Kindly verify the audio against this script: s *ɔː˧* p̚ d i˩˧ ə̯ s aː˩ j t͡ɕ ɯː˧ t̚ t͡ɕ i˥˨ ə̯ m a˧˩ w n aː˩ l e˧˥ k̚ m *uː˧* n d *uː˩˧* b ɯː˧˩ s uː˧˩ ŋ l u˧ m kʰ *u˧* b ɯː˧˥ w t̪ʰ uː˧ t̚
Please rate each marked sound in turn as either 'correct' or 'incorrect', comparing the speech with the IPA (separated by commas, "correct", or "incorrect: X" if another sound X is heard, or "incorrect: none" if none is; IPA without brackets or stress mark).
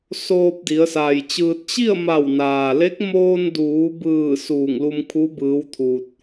incorrect: oː˧, incorrect: oː˧, correct, incorrect: u˧˥